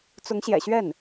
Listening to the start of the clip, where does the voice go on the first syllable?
rising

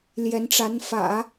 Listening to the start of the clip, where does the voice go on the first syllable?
rising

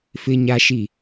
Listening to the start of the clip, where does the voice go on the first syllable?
high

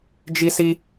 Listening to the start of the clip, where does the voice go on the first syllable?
high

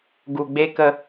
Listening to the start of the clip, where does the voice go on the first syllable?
low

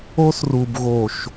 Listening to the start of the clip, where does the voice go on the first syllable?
high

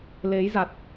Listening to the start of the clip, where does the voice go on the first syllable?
rising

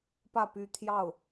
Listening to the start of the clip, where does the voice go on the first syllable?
falling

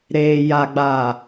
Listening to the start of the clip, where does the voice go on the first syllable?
low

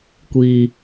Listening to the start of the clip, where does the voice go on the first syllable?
low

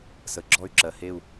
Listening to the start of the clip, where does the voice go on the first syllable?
low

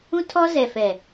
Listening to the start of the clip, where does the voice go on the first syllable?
high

